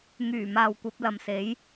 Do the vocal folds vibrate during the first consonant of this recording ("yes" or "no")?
yes